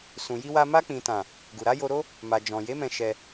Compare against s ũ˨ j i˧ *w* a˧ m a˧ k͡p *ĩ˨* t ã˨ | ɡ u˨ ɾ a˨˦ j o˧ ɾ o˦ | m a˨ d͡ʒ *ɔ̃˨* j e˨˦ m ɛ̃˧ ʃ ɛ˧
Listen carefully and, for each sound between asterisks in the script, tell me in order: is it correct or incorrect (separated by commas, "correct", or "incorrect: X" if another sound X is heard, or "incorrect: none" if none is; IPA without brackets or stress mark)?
correct, correct, correct